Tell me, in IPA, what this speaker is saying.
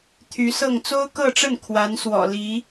t̪ʰy˧˥sɤ˥˩ŋ t͡so˥ʊ̯kɤ˥˧ʈ͡ʂə˥˩n kʰwa˧˥nswɔ̰˨˩ li˧˥

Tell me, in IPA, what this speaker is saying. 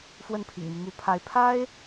fwə˥˩npʰḭ˨˩ŋmi˦ mu˧˥ pʰa˧˥ɪ̯ pʰa˥ɪ̯

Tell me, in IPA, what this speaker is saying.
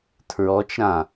tʰɹɔt͡ʃɾã

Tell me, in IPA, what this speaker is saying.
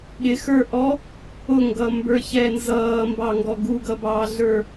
ɠɪxə˞ʔɔ | ʊŋɡʌmbə˞çɛ nzʌːmbɑŋɡɔ ɡuɡʌbɑːɮə˞

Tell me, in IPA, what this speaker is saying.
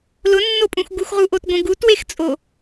lʊnːopʼũx ɡuxʁuʔotɡʷẽ ɡutwext͡sʼo

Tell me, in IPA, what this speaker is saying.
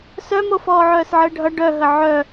sœmo fɔːʕœːsʕəːɖʱʌ ɖœɦə ʕœ

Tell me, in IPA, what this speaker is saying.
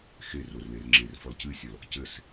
xe rorler ŋ͡ǁerfɔl cɨsʲɔl | cɘs

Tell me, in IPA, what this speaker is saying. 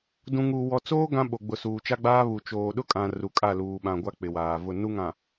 dũ˨ŋuː˨wɔ˨t͡soː˦ ɡã˦ ɓo˨ɡ͡bʊ˨ suː˨t͡ʃa˦ɡ͡baː˦ βu˨ t͡ʃoː˨ ɗʊ˦kʼã˨ ru˨kʼa˦˨ luː˨ɓã˨ ɡʷa˦k͡pɪ˨waː˨ vʊ˦˨nu˦ŋã˨

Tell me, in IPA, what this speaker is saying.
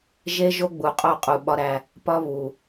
ʒe˦ʒo˦ɡ͡bu˨qʼo˦˨ qʼu˨ɓɒ˦ɾæ˦˨ | pɒ˦ βu˨

